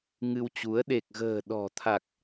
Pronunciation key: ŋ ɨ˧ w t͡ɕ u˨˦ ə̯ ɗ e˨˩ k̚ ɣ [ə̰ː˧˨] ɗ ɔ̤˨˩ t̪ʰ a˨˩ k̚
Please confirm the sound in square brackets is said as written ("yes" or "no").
no